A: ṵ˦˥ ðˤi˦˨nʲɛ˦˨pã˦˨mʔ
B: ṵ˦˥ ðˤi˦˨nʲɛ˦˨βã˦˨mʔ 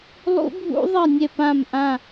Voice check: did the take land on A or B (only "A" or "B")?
A